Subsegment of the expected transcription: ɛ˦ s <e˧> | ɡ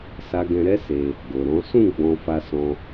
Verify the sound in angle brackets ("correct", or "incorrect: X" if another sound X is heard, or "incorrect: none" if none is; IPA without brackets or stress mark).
correct